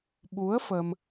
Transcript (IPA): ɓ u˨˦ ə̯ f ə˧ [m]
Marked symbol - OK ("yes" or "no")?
yes